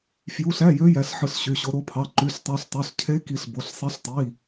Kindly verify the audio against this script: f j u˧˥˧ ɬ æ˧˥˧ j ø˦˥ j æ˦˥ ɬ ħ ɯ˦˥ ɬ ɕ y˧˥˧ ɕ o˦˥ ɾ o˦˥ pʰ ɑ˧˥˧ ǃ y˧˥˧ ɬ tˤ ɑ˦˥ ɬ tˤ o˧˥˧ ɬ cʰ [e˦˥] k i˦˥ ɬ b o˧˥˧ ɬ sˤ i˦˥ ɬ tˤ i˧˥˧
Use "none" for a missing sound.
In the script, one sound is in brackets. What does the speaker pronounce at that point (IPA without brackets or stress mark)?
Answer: e˦˥